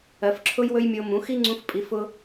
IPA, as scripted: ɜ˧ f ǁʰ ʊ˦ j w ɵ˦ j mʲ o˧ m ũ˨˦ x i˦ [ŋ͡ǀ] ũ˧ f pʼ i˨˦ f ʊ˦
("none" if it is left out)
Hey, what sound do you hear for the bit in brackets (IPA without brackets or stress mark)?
ŋ͡ǀ